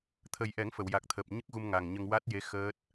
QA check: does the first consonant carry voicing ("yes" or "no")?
no